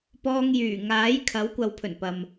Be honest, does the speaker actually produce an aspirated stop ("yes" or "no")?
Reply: yes